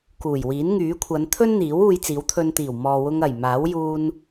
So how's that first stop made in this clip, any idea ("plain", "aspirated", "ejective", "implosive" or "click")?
plain